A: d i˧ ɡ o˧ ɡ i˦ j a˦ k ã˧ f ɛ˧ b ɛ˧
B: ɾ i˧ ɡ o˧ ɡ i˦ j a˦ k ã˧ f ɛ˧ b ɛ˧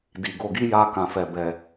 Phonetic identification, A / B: A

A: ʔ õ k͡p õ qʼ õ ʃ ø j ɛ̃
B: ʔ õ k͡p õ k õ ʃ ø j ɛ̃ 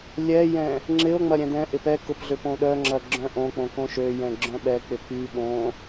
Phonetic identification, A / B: B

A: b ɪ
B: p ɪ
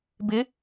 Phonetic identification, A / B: A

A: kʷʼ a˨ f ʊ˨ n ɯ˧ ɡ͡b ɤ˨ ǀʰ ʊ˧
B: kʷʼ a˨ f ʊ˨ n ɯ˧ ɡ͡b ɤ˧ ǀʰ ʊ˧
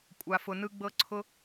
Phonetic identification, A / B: B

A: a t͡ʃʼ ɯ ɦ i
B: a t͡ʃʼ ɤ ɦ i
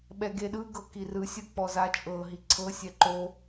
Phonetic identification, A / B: B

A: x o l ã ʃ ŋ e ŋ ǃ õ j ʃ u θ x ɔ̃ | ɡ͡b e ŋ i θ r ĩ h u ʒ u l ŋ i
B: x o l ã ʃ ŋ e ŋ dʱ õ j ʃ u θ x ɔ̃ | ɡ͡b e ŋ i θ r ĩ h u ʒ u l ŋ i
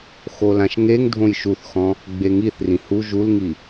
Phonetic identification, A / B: B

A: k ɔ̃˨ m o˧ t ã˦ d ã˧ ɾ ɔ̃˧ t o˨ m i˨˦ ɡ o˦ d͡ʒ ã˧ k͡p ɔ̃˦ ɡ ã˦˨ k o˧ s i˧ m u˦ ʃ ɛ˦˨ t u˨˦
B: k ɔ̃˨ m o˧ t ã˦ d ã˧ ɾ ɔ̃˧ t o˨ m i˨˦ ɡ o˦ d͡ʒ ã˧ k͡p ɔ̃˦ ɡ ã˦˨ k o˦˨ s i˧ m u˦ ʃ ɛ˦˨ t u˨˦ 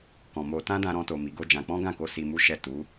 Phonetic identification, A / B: A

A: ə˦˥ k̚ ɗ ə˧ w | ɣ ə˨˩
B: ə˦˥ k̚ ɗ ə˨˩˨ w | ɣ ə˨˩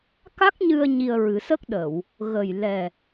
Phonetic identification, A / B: B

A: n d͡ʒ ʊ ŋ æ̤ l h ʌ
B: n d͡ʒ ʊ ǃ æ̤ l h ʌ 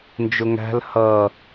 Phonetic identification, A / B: A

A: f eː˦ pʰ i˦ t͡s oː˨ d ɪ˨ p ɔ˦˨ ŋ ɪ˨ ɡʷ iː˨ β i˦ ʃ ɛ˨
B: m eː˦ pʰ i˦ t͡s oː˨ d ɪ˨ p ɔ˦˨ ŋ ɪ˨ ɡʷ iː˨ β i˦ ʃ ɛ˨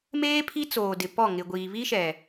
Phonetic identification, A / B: B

